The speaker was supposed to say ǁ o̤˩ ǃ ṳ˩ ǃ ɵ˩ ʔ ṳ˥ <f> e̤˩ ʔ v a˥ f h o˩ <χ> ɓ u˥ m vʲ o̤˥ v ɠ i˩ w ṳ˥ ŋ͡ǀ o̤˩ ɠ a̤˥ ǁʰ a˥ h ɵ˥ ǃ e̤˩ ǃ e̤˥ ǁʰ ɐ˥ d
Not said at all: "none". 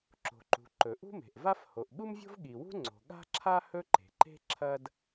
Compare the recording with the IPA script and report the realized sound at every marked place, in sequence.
m, ʔ

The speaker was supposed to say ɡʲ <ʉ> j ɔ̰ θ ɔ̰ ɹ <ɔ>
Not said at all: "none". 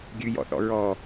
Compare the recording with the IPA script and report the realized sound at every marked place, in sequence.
ʉ, ɔ

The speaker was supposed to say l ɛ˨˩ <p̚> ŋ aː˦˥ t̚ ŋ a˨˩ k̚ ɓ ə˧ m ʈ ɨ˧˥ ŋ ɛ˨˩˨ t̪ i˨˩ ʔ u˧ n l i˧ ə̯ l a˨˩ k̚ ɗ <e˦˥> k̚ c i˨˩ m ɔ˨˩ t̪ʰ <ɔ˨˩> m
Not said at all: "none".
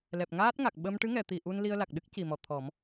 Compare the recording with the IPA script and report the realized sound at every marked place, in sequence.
p̚, ɨ˦˥, ɔ˨˩˦

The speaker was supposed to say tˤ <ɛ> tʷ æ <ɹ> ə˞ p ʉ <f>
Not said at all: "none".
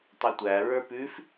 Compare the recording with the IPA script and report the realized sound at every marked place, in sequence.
ɛ, ɹ, f

